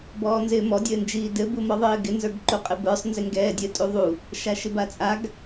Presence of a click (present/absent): present